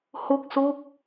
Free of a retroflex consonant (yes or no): yes